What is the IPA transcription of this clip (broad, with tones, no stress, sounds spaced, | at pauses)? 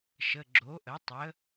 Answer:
ʃ ə˩˧˩ ɡ͡ǁ o˩˥ ʔ ə˩˥ tˤ ə˩˥